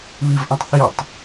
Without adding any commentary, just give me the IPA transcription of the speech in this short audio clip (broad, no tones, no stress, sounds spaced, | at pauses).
β i v ʔ ɐ̃ tˤ θ i tˤ